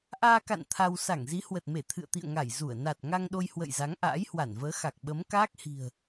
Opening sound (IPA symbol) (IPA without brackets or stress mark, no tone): ʔ